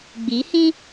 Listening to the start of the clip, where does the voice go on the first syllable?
rising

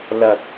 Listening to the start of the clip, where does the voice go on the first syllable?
low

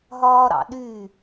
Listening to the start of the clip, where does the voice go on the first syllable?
high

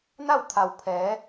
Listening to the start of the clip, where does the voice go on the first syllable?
falling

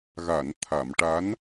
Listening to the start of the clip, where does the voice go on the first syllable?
low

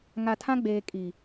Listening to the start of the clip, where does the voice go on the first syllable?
low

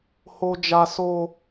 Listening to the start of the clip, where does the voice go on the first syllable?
high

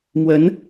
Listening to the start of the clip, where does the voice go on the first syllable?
rising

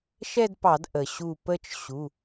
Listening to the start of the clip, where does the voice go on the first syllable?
falling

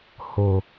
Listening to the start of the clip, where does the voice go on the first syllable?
low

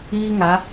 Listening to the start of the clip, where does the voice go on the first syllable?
high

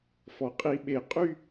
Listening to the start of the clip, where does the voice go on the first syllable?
low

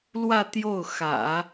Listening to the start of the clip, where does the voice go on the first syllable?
falling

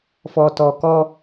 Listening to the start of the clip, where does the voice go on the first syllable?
low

